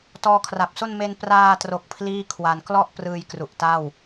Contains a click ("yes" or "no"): no